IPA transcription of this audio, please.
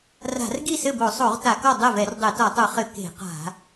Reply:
r a̤˧˩˧ r ɡ i˥˩ s ɘ˥˩ b o˧˩˧ sˤ o˧˩˧ ʁ t a˧˩˧ k ɔ˥˩ dˤ ɛ˥˩ v ɛ˧˩˧ r dˤ e˧˩˧ t ɔ˧˩˧ tˤ u˧˩˧ χ ɘ˧˩˧ k e̤˧˩˧ q a̤˧˩˧

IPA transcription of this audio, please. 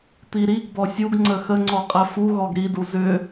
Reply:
t̪ i ɾ i ɡ b ɔ sʲ u ɡ ŋ͡ǀ ə x ə ŋ͡ǀ ɔ qʼ æ f u ɣ ɔ ɡ ɾ i d u z ʏ

